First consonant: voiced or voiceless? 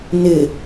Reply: voiced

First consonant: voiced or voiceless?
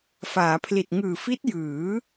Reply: voiceless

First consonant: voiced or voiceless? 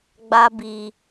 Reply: voiced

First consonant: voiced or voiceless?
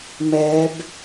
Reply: voiced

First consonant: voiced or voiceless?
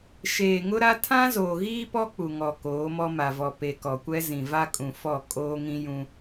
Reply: voiceless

